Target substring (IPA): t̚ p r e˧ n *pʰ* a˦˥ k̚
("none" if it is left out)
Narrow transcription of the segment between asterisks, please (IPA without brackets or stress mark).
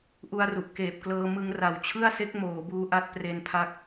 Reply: pʰ